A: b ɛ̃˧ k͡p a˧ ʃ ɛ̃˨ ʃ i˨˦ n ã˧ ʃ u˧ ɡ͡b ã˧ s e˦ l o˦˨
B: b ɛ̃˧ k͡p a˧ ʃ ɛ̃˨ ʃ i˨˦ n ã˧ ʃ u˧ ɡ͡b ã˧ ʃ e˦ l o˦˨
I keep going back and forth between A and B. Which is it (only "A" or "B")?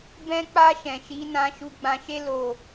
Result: B